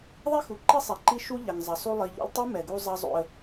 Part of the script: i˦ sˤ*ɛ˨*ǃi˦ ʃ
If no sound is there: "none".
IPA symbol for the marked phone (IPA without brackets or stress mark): ɛ˨